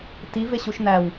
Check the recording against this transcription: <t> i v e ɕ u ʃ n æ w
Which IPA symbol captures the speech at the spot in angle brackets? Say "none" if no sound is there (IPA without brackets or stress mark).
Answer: t